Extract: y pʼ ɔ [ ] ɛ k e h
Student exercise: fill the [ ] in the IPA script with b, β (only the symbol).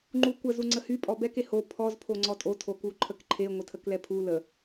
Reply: b